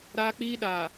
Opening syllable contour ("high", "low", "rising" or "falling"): high